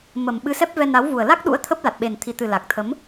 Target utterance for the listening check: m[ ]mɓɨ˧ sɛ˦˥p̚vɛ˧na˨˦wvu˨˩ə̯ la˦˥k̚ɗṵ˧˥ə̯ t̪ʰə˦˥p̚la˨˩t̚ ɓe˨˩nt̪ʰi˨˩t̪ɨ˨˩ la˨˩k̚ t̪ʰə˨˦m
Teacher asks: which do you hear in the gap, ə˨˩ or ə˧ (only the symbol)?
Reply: ə˨˩